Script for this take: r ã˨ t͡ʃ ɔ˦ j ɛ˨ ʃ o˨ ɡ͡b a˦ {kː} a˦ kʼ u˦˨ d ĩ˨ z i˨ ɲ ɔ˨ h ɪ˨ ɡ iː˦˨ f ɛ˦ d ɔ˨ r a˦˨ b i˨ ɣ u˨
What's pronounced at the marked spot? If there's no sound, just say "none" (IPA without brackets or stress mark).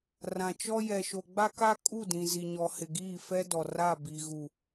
k